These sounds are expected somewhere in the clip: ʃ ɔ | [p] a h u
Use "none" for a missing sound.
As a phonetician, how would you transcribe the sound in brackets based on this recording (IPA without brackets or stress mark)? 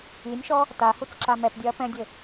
t